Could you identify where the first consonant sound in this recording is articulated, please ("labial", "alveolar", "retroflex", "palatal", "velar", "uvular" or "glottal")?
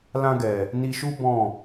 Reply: alveolar